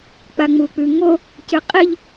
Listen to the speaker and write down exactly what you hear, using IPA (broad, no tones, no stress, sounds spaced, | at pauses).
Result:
k͡p a ŋ͡m u k͡p ʉ ŋ o | c ɨ qʼ i ʎ